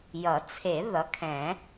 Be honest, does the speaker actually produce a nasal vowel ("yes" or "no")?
yes